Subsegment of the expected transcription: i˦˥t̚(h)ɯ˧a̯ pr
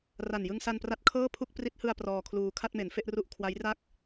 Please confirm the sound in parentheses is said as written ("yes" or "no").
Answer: yes